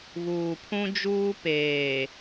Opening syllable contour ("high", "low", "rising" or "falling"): low